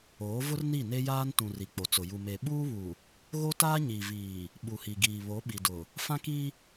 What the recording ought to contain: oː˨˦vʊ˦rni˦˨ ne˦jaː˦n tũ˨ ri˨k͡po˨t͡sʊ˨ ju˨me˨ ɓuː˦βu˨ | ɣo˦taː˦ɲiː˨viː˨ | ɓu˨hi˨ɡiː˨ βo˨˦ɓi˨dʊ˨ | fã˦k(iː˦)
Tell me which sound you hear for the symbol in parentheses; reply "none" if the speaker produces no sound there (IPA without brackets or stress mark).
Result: i˦